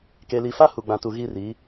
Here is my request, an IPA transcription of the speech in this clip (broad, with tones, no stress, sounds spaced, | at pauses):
k e˨ l i˨ f a˦ h u˨ ɡ͡b ã˨ t u˨ ɣ i˦˨ r i˨˦